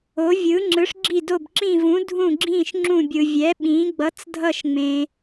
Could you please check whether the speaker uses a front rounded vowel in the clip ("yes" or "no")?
no